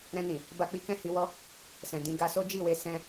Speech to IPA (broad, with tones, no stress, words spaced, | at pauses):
ɾɛ̃˧ nĩ˨ | ba˧k͡pi˦ kɛ̃˦˨hi˧ wɔ˦ | sɛ̃˨dĩ˧ ɡa˧so˦d͡ʒi˦˨we˧ sɛ̃˦